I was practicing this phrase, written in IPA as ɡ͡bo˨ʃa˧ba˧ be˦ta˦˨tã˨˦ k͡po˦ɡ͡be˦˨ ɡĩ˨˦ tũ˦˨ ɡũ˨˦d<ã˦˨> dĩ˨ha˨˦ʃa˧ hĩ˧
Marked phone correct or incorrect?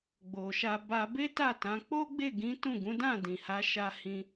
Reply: correct